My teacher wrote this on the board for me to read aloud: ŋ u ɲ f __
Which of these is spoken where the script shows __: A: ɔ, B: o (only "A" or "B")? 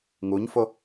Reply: B